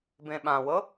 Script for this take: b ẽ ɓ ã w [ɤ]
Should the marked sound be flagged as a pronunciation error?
no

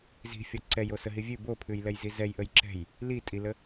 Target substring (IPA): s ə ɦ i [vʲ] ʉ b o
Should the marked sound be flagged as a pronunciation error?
no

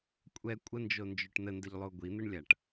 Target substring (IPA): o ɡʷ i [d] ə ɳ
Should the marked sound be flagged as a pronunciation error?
yes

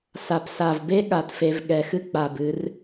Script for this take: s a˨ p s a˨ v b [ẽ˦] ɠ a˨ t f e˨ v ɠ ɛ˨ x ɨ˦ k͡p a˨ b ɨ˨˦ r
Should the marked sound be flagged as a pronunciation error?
yes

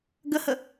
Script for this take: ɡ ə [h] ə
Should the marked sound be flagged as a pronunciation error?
no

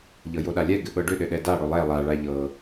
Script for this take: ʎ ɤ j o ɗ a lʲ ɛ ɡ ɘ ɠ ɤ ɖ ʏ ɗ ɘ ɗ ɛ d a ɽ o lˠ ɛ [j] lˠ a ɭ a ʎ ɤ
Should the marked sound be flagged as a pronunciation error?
yes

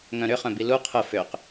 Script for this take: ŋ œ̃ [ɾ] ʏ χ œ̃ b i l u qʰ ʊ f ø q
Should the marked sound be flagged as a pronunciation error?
no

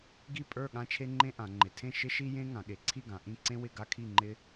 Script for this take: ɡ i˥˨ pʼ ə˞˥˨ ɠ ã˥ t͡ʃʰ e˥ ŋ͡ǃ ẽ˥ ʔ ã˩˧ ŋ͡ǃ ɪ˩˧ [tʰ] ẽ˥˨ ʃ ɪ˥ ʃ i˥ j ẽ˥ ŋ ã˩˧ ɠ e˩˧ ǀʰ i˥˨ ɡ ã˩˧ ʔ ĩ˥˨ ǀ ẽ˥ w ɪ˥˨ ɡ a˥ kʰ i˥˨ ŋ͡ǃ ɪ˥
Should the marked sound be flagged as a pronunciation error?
no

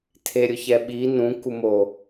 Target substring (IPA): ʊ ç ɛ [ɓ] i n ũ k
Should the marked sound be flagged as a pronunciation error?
no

